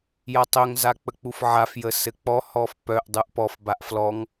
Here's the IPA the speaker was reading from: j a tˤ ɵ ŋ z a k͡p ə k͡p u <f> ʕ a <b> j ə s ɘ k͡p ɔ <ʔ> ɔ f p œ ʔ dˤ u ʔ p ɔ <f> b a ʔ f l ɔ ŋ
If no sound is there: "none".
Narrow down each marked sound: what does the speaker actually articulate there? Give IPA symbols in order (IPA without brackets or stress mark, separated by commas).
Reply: f, f, h, f